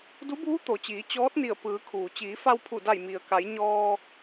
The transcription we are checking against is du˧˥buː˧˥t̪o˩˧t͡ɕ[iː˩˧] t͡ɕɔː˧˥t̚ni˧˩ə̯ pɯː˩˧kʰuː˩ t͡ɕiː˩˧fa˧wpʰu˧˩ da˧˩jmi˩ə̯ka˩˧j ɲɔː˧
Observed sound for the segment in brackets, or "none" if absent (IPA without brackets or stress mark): iː˩˧